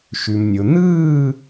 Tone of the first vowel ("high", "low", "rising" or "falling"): low